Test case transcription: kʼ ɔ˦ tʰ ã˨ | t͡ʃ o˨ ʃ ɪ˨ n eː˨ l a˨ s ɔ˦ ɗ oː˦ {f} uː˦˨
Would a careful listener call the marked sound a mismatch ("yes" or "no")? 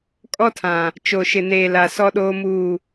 yes